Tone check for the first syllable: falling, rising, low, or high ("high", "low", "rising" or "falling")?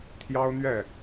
high